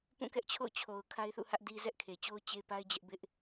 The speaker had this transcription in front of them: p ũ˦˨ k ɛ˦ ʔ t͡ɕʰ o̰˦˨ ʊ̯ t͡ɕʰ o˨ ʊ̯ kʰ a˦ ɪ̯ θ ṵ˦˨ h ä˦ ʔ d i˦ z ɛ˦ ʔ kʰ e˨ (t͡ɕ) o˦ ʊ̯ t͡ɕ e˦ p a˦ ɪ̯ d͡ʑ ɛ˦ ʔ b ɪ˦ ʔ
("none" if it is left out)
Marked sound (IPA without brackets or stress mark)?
t͡ɕ